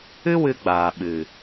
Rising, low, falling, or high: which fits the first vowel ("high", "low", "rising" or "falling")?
high